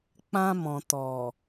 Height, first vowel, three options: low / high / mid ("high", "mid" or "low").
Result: low